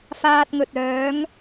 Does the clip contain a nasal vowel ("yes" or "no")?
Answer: no